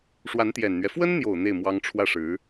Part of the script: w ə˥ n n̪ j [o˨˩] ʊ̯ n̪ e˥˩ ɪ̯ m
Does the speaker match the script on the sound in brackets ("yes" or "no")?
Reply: yes